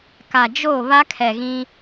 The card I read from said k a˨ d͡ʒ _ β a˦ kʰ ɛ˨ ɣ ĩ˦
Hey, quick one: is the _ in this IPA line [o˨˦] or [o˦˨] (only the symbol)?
o˦˨